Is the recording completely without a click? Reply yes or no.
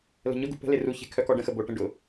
yes